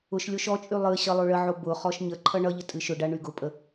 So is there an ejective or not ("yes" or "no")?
yes